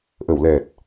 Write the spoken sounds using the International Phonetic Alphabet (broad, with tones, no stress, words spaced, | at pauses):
ʔə˨˩˨wlɛ˨˩t̚